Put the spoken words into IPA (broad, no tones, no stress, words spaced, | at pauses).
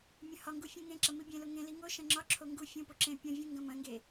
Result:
mʲɐ̃hɒŋɡu fʲũŋẽǁɐ mibʲẽlo ŋẽli ŋoʃɐ̃ ŋ͡ǁɒǁʰo ŋɡu fʲũpo ǁẽ pʲɐ̃vʲũ ŋɡɐ̃mɐ̃ŋɡe